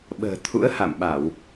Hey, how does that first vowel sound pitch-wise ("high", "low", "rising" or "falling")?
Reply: low